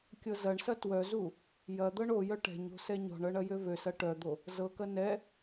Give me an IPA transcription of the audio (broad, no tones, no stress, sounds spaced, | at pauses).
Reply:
kʲ ɤ z ɐ ɳ s ɐ t w œ z u | j ɐ d̪ ɤ ɳ o j œ ʈ ɛ̤ ɲ o̤ s ɛ ɲ ɔ̤ ɳ ɤ ɳ ɐ j ø v ø s ɐ ʈ œ d̪ o | z ɤ k ɐ n ɛ